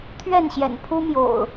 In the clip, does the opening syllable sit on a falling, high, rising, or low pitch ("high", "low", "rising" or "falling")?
falling